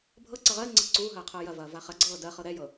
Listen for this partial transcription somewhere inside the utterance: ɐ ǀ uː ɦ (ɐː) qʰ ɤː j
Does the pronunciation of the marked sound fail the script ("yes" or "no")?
no